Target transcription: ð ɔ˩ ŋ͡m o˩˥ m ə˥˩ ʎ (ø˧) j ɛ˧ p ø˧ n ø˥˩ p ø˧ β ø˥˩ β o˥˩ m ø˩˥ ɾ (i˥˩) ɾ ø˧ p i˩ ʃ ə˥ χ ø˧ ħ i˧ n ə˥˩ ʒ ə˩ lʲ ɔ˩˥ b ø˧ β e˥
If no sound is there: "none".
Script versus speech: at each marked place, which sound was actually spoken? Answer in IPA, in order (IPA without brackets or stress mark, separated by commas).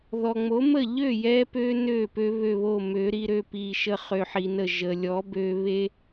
ø˥˩, i˧